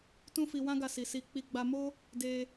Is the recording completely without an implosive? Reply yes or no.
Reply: yes